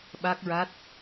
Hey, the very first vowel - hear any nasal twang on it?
no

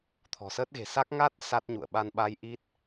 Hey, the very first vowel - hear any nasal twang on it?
no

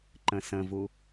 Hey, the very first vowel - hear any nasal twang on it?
yes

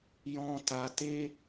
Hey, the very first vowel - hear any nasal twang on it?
yes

